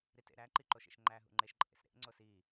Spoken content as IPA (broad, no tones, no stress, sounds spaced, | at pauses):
ɾ i t ḛ ɾ æ ǃ i ǃ o ʃ ḛ ʃ ŋ͡ǃ æ ɦ ṵ ŋ͡ǃ e ʃ ǃʼ ḛ s ɾ ḛ ŋ͡ǀ o s i